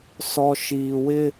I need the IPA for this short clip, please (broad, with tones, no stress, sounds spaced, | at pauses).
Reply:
s ɔ˨ ʃ iː˨ w ɪ˦